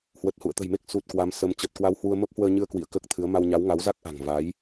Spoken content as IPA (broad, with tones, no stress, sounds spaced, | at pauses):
h w ə˨˩ t̚ h ṵ˧˨ ə̯ t̪ ə̤˨˩ j m e˦˥ k̚ s u˨˩ t̚ k w a˨˦ m s ə˨˦ m t͡ɕ əː˨˩ t̚ k w a˧ w h w u˧ ə̯ m ə˦˥ p̚ h w əː˧ ɲ ɨ˧ ə̯ k w ḭ˧˨ ə̯ k əː˦˥ k̚ t̪ʰ ɨ˨˦ ə̯ m a˧ w ɲ a˨˦ w ŋ a˨˦ w z a˦˥ k̚ ʔ a̤˨˩ ŋ v a˨˦ j